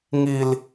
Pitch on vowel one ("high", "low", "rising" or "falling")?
low